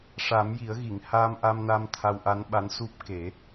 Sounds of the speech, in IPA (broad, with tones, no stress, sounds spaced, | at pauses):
ʂ a˨˩˦ m j i˨˩˦ ə̯ ɣ i˨˩˨ ŋ h aː˧ m ʔ a˧ m n a˧ m t̪ʰ a˧ w ʔ a˧˥ n ɓ a˧˥ n s u˦˥ p̚ k e˨˩˦